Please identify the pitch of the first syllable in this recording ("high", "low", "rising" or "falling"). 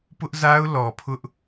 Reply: high